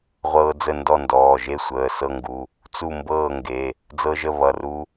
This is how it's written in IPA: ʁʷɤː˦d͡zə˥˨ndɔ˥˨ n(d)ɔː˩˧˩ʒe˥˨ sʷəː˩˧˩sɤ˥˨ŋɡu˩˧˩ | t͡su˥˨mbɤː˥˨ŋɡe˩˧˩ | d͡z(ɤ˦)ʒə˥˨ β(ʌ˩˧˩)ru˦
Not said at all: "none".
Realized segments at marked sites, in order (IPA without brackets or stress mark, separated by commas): d, ɤ˦, ʌ˩˧˩